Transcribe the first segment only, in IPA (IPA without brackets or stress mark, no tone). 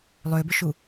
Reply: lˠ